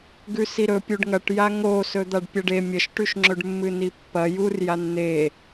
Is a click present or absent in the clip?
present